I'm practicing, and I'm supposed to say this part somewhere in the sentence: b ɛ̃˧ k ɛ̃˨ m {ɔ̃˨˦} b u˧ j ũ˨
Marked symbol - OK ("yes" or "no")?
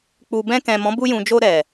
yes